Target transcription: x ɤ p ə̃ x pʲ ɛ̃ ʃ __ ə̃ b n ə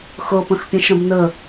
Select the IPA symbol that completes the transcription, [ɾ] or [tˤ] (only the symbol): ɾ